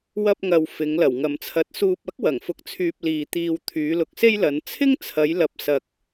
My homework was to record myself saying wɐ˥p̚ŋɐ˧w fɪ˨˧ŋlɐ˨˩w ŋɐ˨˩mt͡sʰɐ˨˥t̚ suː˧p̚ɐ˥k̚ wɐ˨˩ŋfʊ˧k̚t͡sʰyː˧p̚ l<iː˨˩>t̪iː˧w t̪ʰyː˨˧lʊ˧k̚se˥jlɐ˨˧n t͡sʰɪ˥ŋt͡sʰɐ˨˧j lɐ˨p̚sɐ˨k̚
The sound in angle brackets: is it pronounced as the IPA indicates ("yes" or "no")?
no